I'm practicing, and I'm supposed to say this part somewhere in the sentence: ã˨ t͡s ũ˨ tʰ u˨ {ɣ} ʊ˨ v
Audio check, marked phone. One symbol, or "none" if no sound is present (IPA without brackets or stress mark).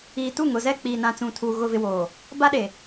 ɣ